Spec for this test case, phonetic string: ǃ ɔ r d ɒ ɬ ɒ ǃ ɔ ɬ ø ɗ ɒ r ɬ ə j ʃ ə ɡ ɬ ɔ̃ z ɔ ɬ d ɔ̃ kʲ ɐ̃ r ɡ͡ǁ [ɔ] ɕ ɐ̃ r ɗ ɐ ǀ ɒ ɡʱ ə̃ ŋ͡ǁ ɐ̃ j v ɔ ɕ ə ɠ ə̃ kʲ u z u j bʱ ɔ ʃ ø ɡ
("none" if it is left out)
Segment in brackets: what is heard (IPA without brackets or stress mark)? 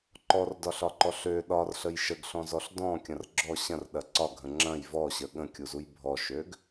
ɔ